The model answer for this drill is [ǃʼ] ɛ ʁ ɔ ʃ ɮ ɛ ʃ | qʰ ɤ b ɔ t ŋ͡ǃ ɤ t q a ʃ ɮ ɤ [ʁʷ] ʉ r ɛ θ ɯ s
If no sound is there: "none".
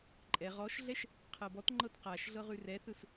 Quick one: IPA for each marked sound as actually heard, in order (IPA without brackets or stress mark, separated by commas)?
ǃʼ, ʁ